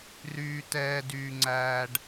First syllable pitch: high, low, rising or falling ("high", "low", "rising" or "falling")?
high